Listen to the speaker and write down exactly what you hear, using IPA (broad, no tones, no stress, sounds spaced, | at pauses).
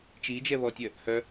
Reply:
t͡ʃ i d͡ʒ ɛ β ɔ tʲ œ | h œ